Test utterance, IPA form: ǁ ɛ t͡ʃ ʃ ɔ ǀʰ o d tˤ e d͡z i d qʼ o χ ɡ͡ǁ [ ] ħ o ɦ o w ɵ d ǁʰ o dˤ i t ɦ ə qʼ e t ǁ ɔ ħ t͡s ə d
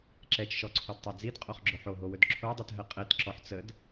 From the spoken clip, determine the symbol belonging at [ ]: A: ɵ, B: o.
A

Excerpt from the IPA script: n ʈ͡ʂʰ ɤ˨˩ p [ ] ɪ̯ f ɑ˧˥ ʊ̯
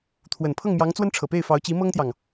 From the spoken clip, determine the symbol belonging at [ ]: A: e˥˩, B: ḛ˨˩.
A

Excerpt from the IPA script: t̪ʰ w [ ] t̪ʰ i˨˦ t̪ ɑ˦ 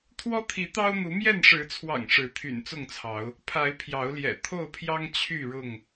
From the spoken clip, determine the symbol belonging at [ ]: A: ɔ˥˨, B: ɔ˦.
B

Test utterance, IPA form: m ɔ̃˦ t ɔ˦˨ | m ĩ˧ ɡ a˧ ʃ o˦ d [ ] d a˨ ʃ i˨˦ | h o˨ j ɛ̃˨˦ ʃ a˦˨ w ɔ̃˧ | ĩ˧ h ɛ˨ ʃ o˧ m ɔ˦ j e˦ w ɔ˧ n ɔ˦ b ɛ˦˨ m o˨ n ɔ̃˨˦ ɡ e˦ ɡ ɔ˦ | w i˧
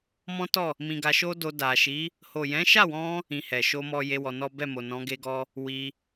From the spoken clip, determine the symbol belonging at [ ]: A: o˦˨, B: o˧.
B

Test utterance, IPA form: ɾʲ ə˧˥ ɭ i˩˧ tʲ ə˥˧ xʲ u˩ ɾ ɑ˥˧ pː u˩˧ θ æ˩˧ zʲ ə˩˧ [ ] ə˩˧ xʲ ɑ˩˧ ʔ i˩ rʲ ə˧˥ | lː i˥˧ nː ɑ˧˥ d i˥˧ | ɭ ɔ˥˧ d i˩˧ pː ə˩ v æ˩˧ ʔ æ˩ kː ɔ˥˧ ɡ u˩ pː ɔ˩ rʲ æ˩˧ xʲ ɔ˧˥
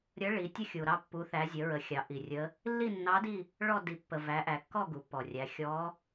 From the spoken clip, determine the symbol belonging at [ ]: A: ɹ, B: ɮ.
A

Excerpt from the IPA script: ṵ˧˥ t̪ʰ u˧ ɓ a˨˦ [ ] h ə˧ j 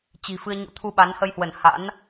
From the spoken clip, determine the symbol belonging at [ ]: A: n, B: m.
A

